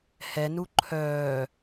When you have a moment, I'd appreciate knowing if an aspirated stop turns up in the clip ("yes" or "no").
yes